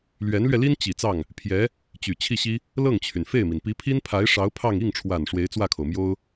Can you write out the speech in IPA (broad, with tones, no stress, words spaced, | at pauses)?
lɥɛ˧˥nlɥɛ˧li˥n t͡ɕi˨˩ t͡sɑ˥˩ŋ | pʰjɛ˧˥ | t͡ɕy˨˩ t͡ɕʰi˥˩ɕi˥ | lɤ˥˩ŋt͡ɕʰy˩nfe˥˩ɪ̯mi˩n pi˧˥pʰi˥npʰa˧˥ɪ̯ʂɑ˧˥ʊ̯ pʰɑ˥˧ŋ i˥˩ŋʈ͡ʂʰwa˨˩n ʂwe˧˥ɪ̯t͡swä˥˩kʰo˩ʊ̯mjo˥ʊ̯